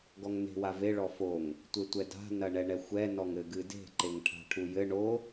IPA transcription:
ɡ ɔ ŋ n e̤ w a v e ɭ ɔ f o ŋ | tʷ e tʷ ɛ d a̤ n ɐ ɳ ɛ ɳ ɛ xʷ ɛ n ɔ ŋ ɘ ɡ ɨ d e̤ ǃ e ŋ ʈʰ a̤ ʈʰ u j ɘ ɳ o

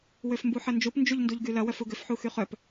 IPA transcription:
w ø f m b u ħ ɐ n d͡ʒ u p n d͡ʒ u ʎ n d u ʎ ɡ y l ɐ w œ f u ɡ ʏ f ħ u x y χ œ p

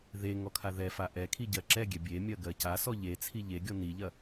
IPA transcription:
ð e ŋ ɔ kʰ a ð ɛ f a ʔ ɛ kʰ i ɟ ɜ ǁ ɛ ɡʲ ɛ bʲ e mʲ ɜ ɡ ɜ c a s ɔ ʎ e t͡sʰ i ʎ e ɡʲ ɔ n i ʎ ɐ

